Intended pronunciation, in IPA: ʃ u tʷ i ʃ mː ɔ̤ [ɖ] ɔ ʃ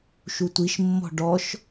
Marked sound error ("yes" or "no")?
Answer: no